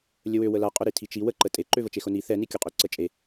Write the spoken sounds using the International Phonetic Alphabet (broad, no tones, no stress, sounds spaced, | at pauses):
lʲ ə w ø w ə l a qʼ ʊ ɾ i tʰ i t͡ʃ i w ə ǃ ə tʼ e ǃ ø v ə t͡ʃ e x ʊ n i θ ɛ n i kʲ ʊ qʼ ø ǀ ə t͡ʃʼ e